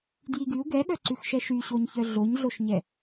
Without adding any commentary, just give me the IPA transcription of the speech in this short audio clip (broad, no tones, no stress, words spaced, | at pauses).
djiɡyu̯ ɡɛɠœǀʉxʃɛ ʃyɕoɲçœ ɮoɲɮoʃɲɛ